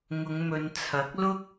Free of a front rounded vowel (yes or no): yes